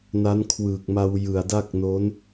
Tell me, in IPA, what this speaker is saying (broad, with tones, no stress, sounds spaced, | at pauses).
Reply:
n a˦˥ n kʰ w ɯː˨˩ k̚ m a˧ w j ɯ˨˩ a̯ d a˥˩ k̚ n o˦˥ n